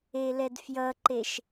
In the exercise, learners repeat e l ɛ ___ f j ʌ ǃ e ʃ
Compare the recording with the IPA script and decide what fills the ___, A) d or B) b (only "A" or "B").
A